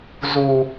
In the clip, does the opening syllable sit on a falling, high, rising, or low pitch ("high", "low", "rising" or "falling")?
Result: low